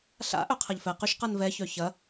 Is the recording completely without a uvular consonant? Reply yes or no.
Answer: no